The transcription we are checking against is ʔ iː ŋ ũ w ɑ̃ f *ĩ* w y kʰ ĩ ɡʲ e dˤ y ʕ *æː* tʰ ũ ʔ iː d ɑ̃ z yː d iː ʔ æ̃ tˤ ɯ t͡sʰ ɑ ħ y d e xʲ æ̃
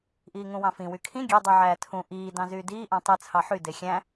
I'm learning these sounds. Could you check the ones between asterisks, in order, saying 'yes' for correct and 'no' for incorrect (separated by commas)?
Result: yes, yes